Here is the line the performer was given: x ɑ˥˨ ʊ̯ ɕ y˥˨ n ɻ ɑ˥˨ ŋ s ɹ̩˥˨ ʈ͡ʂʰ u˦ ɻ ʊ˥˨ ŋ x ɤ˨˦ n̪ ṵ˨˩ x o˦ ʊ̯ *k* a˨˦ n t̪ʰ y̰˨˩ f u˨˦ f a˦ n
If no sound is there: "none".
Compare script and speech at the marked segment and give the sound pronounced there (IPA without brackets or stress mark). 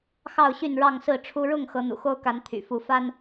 k